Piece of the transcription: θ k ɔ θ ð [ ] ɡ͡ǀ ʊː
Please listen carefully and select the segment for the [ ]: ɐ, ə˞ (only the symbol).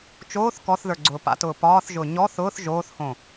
ə˞